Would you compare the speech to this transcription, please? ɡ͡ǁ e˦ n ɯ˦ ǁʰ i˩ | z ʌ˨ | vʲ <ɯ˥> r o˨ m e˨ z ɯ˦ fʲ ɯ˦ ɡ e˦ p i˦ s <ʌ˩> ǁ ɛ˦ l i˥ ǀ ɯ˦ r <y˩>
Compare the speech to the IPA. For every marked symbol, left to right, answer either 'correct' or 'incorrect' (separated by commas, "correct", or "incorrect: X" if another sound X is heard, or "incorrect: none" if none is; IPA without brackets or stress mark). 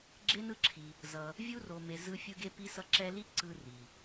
incorrect: u˥, incorrect: ʌ˦, incorrect: i˩